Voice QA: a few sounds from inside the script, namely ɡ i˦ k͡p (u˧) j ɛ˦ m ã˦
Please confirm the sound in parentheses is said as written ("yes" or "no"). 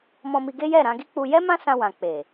yes